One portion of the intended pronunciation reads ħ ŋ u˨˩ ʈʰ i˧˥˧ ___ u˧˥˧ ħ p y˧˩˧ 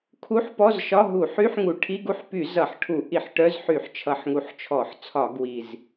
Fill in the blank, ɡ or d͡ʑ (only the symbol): ɡ